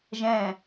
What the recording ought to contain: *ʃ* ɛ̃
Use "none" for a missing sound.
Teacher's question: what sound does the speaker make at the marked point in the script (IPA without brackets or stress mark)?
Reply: ʒ